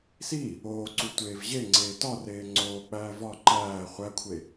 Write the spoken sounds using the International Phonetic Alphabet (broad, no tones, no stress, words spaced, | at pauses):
si | oːǀu tʷeːvʑeŋ͡ǀeː tɒreː ŋ͡ǀoːk͡pæː vɒ ǃæː χʷækʷʰe